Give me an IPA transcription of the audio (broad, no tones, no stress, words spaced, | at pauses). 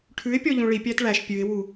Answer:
ʈʰʉɪ̯ pʲɔʎũɭi pʲætɭæʃ pʲʉɪ̯wu